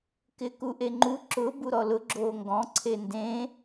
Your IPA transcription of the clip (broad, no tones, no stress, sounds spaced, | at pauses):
k ɪː k u ʔ e ŋ͡ǃ u ǁ ʊ b u ɾ ɔ l ʊ ɡ͡ǁ oː ŋ ɡ ɔ̃ ǀʰ e n d ẽ